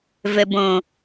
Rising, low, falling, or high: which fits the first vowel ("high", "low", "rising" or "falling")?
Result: low